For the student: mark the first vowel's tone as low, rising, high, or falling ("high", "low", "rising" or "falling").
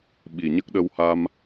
low